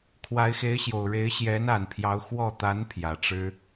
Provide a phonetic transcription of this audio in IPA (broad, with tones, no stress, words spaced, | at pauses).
kʰwa˧˥ɪ̯xe˧˥ɪ̯ɕjo˨˩ʊ̯ ɻe˧˥ɪ̯ɕjɛ˧˥na˨˩npʰjɑ˧˥ʊ̯ xwɔ˥˩ t̪a˧˥n pʰjä˨˩ʈ͡ʂɻ̩˥